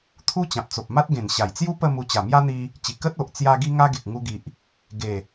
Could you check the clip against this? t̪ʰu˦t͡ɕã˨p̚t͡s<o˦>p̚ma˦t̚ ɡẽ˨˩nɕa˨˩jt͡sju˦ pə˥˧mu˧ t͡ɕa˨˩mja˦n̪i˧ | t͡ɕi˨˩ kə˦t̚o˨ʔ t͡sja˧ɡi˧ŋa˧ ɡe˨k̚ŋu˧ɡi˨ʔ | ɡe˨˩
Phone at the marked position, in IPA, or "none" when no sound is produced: o˨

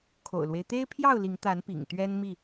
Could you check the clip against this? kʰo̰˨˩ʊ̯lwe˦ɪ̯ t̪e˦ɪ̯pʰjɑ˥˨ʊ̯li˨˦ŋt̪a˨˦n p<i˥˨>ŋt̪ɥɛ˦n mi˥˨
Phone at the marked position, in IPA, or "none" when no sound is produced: ḭ˨˩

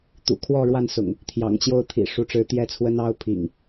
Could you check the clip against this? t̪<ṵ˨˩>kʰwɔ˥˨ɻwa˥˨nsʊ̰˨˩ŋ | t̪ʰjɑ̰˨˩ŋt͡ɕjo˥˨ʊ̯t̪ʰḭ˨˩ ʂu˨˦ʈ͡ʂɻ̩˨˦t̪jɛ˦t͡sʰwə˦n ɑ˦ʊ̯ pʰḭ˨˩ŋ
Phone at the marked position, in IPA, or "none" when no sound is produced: ṵ˨˩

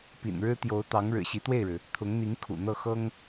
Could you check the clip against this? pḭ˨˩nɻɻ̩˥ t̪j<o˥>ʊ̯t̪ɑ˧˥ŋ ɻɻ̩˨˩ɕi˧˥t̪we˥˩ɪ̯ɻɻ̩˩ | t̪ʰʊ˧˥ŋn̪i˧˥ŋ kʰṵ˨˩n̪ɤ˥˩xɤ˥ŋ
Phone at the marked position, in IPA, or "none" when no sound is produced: o˧˥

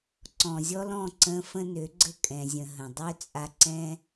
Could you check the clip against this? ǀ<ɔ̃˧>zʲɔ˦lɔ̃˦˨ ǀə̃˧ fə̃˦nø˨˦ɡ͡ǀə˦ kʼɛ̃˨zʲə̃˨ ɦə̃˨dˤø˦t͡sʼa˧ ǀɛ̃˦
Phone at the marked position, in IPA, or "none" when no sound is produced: ɔ̃˨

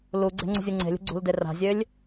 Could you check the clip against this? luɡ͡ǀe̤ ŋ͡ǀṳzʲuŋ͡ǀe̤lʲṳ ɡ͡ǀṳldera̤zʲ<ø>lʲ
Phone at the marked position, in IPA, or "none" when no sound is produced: ø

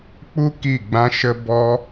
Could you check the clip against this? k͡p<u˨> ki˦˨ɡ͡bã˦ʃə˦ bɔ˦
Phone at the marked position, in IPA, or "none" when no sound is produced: u˦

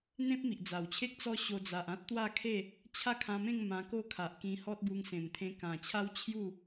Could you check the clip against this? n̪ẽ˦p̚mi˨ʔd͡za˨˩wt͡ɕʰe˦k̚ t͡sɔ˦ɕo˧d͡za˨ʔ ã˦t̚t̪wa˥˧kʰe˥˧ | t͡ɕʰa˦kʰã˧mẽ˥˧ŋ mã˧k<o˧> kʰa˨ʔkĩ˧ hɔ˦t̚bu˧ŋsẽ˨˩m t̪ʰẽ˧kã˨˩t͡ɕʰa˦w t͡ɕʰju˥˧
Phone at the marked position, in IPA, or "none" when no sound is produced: o˥˧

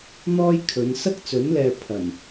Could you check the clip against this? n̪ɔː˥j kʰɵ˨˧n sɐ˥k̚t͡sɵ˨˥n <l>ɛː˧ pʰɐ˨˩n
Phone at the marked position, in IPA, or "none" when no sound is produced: l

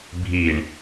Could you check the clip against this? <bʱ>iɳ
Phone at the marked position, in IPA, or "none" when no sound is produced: bʱ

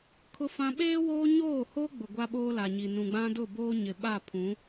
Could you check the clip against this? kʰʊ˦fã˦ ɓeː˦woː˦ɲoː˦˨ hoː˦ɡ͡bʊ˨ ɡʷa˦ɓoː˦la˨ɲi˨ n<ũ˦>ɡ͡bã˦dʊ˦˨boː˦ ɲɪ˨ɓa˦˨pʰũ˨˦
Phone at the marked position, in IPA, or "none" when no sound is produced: ũ˨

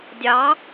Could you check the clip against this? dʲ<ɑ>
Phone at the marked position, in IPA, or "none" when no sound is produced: ɑ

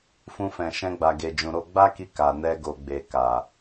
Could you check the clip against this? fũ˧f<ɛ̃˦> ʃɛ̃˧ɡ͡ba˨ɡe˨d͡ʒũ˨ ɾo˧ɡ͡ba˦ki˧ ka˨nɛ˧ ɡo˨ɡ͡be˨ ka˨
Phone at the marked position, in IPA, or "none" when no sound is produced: ɛ̃˨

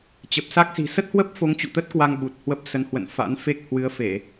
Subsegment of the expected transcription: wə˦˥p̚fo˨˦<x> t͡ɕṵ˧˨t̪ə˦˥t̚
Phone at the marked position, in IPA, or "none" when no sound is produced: ŋ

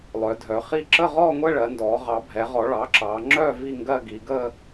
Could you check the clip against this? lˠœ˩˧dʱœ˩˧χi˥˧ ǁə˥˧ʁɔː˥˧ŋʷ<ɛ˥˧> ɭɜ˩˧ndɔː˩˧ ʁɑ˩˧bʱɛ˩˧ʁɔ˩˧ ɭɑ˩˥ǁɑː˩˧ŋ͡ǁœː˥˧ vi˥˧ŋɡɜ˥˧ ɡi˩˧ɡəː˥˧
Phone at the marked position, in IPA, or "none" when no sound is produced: ɛ˥˧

